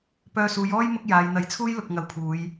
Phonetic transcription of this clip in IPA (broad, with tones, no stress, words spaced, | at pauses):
pœː˧suː˨˧jɔː˥j mʊ˥k̚jaː˨˧j n̪ɐ˨˥jt͡sʰuː˥j lʊ˨k̚ ŋɐ˨˧wpʰuː˨˧j